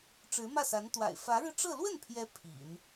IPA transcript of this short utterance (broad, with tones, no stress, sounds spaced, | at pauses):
ʈ͡ʂ ɻ̩˧˥ m ä˥˩ s a˧˥ n t̪ w a̰˨˩ ɪ̯ f ä˧˥ ɻ ɻ̩˧ ʈ͡ʂ ɤ˥˧ l w ə˥˩ n pʰ j ɛ˧˥ pʰ ḭ˨˩˦ n